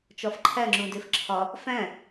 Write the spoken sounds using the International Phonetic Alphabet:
t͡ʃ ɒ f ǃʰ æ ŋ͡ǁ ũ d e f ǁʰ ɒ | f æ̃

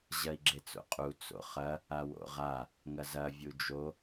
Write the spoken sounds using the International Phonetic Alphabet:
ʑ ɐ i̯ ɡ͡ǁ e t͡s o̰ qʼ u t͡s o̰ χ ɐ | a w o̰ ʁ a | ŋ ɐ z ɐ vʲ u d͡ʒ o

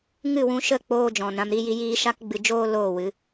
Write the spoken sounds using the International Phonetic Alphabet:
ŋ ɨ˦˨ w ũ˧ ʃ ə˦˨ k͡p oː˧ d͡ʒ ɔ̃˨ n ɾ ã˧ m ɾ i˧ j i˧ j iː˧ ʃ a˦ k ɡ͡b ɨ˧ d͡ʒ oː˦ l oː˦˨ w ɨ˨˦

